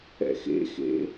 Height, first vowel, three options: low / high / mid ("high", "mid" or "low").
mid